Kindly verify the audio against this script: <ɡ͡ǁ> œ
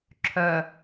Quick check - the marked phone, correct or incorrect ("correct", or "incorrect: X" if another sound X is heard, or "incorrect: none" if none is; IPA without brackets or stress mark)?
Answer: incorrect: ǁʰ